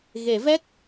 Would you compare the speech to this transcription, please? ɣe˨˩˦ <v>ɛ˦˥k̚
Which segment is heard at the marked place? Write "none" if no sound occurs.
v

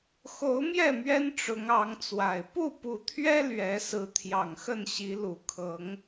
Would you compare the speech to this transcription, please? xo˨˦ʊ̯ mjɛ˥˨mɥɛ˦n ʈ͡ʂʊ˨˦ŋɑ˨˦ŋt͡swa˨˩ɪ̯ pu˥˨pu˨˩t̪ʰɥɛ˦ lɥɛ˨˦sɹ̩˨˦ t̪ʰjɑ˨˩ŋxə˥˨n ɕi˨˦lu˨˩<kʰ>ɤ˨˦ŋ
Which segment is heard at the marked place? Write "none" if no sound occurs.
kʰ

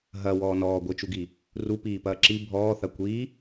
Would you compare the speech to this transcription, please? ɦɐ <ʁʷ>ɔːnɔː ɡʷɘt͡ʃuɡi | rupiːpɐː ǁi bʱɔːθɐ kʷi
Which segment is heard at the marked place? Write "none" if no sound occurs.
w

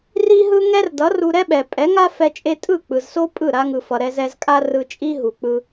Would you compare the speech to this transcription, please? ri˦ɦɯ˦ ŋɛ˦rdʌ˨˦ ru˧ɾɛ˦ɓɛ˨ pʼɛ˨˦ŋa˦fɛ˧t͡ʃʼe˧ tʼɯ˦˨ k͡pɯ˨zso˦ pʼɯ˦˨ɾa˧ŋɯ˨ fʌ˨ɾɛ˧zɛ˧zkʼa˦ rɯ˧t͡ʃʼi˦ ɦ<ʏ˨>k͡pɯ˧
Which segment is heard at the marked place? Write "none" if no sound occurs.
u˨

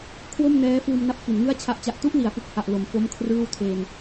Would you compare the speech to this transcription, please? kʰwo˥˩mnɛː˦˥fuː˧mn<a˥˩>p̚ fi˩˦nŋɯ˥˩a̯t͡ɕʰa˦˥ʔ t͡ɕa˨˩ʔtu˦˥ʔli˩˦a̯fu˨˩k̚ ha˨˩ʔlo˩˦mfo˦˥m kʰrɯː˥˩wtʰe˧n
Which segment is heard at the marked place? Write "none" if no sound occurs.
a˦˥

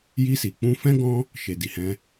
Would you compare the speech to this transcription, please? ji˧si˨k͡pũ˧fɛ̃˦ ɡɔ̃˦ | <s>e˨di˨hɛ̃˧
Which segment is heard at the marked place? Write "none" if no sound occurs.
ʃ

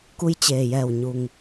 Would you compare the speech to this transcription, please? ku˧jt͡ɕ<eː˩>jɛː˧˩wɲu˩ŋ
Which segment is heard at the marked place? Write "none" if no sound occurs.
eː˩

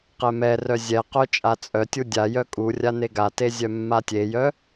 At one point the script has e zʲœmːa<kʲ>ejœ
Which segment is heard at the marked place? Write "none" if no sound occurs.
tʲ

